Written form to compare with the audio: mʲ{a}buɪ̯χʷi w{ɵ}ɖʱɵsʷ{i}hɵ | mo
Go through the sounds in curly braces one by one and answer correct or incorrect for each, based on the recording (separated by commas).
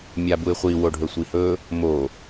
correct, incorrect, correct